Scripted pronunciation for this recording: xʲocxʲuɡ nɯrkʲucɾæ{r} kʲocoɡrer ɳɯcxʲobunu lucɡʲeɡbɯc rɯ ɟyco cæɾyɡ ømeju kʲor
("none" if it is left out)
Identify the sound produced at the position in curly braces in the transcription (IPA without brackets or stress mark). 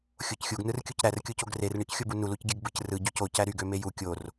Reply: r